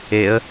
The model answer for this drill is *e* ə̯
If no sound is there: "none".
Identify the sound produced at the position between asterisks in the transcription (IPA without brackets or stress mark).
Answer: e